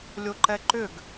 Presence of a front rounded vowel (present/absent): present